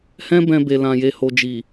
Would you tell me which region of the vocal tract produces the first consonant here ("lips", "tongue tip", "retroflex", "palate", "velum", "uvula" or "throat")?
throat